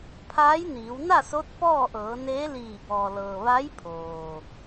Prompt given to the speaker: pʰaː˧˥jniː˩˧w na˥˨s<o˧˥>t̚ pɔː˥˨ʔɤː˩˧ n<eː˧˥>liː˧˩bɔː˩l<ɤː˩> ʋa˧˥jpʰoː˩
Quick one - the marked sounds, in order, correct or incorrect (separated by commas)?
correct, correct, correct